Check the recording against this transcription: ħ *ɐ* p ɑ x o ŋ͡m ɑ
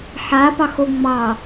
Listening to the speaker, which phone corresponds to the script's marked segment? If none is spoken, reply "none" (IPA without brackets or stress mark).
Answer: a